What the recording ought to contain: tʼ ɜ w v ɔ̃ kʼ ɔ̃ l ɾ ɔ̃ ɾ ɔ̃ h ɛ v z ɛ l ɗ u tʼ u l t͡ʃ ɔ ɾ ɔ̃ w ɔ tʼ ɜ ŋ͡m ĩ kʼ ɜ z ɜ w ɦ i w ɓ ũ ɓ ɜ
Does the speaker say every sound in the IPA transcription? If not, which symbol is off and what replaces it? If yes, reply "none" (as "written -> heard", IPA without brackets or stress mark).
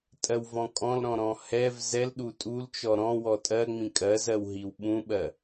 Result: none